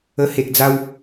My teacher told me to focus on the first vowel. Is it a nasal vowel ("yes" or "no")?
no